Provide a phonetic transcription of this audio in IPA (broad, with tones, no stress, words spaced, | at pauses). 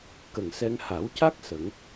kə˨˩ŋsɛ˧ŋ ha˨˩˦wca˦˥k̚ sə˨˩˦ŋ